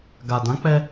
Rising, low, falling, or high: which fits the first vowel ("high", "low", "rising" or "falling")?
low